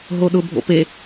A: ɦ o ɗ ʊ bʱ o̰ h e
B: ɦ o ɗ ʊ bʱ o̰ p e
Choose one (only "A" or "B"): B